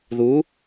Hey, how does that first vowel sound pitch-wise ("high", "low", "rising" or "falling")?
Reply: rising